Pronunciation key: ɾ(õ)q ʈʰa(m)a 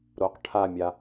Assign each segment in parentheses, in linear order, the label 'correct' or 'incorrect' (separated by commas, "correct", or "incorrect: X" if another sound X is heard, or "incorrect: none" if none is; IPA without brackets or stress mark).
incorrect: o, incorrect: mʲ